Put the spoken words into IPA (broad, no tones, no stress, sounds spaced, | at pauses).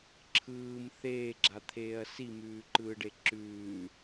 ǁʰ ɯː m θ eː ɡ͡ǁ a t̪ʰ eː ɐ̯ s i m ʉː ǃ ɯː ɖ e ǁ ʉː